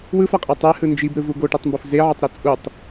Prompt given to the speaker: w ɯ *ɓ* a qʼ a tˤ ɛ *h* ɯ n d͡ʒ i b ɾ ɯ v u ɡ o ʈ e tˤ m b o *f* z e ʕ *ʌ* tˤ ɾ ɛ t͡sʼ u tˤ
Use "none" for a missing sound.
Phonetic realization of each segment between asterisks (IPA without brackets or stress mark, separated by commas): f, h, f, ʌ